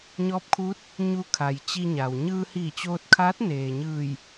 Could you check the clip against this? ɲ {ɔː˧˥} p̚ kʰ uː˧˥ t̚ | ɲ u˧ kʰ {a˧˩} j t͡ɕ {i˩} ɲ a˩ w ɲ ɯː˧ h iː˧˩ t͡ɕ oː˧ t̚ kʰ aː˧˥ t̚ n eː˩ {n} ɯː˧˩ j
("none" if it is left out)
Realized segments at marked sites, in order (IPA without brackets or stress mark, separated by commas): ɔː˧˥, a˩, i˧, ɲ